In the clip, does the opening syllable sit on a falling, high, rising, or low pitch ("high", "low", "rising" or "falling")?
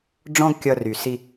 high